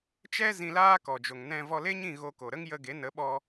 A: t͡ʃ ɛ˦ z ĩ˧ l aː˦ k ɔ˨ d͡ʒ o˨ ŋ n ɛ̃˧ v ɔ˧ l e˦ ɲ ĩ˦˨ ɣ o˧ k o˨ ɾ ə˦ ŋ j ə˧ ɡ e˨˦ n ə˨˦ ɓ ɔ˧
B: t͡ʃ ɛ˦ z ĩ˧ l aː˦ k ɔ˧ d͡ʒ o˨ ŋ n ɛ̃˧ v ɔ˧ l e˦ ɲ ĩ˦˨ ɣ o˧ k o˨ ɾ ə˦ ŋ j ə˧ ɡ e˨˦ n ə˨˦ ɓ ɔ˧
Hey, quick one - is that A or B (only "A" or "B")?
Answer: A